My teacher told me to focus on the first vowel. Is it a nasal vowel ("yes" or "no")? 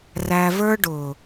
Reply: no